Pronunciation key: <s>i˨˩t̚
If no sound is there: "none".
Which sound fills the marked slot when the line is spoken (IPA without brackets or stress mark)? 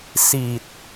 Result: s